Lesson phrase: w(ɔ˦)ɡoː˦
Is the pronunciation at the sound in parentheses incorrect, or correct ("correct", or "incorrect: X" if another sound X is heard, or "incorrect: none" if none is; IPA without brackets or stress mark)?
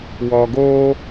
incorrect: ɔ˨